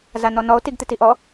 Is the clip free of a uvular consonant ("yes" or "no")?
yes